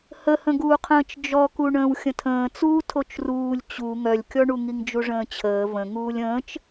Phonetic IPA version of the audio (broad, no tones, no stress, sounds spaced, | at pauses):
h ə h ə̃ ɡ uː qʰ ə̃ː t͡ʃ d͡ʒ ɔ k u ɳ ə̃ː w xʲ ə̃ tʰ ə̃ː t͡s uː tʰ o t͡ʃ r uː lʲ t͡ɕ u ŋ œ lʲ kʲ ɔ ɳ u ŋ i ŋ d͡ʒ u ʐ ə̃ː t͡ɕʰ əː v ə̃ ŋ uː lʲ ə̃ː t͡ʃ